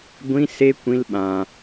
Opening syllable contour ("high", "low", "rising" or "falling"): high